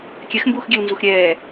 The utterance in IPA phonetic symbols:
kʲ ɛ x m b uː x ɡʲ ɛ w n z u x ɾʲ ɛː

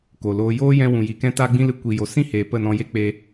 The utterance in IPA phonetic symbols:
k o˨ l oː˧ j oː˦ j ɛ̃˧ w ũ˨ j i˨ k ɛ̃˦ t aː˦ ɡ͡b ĩ˦ l ɨ˧ kʷ i˨ j o˨ s ĩ˦ h eː˨ p ə˦˨ n ɔ̃˧ j e˦ k͡p e˧

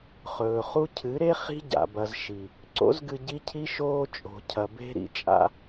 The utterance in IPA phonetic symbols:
χ ɵː˨ χ u˦ cʰ ɨ˨˦ ɾ e˦ χ i̤˦ ɟ a̰˨ b ɐ˨ z ʃ i˨ | ǀ o̰˦ z ɡ ɨ˧ ɟ i˦ cʰ i˦ ʃ oː˧ t͡ʃʼ o̤˨ cʰ ɐ˨ b e̤˧ ɾ ḭ˨ t͡ʃʼ a̰˧

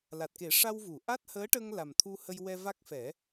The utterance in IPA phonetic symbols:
l a˨˩ t̚ k e˨˩˦ ʂ a˧ w v u˨˩˨ ʔ a˦˥ t̚ h əː˧˥ ʈ ə˧ ŋ l a˨˩ m t̪ʰ u˧ h ə˧ j w ɛ˧ v a˦˥ k̚ f ɛ˨˩˦

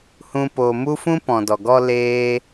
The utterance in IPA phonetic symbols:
h ũ˦ p o˧ m u˦ f ũ˦ p ɔ̃˨ d ɔ˨ ɡ ɔ˧ l eː˦

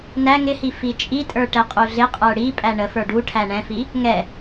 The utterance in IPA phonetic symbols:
n æ ŋ ɪ h i f i t͡ʃʼ i tʼ ə˞ ʈ ɛ qʼ u ɮ ɪ qʼ ə˞ ɽ i pʼ æ ɳ ə f ə˞ ɖ u ʈʰ æ ɳ ɛ̃ f i | ŋ ɛ

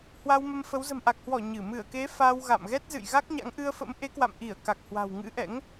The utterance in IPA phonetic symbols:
h w a˧ w m ə˧ m f ə˨˦ w z ə̤˨˩ m ʔ a˨˩ k̚ h w ɔ˧˩ ɲ ɨ˧˩ m ɨ˧˩ ə̯ k e˨˦ f a˧ w ɣ a̰˧˨ m ɣ ɛ˦˥ t̚ z ɨ̰˧˨ j ɣ a˦˥ k̚ ɲ a̰˧˥ ŋ ʔ ɨ˧ ə̯ f ə̰˧˥ m ʔ e˨˦ k w a̰˧˨ m ʔ i˧˩ ə̯ k a˨˩ k̚ h w a̤˨˩ w ŋ ɨ̰˧˥ ʔ ɛ̰˧˥ ŋ

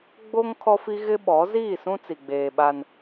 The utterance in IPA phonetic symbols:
ɡ͡b o˦ ŋ kʰ ɔ˦ f i˦ ɣ ɪ˦ ɓ ɔ˨˦ z iː˦˨ s ũ˦ t͡s i˨ ɡ͡b eː˨ ɓ a˦ n

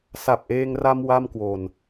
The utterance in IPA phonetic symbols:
s a˨˩ p̚ ʔ eː˧ ŋ r a˧ m w a˥˩ m k w o˨˩ n

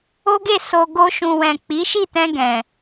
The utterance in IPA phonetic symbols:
o˦ ɡ e˦˨ s o˧ ɡ o˦ ʃ ũ˧ w ɛ̃˨ k͡p i˨˦ ʃ i˦˨ t ɛ̃˧ ɡ ɛ̃˨

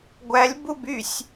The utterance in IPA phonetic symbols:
ɡʷ æ lʲ b u b y sʲ

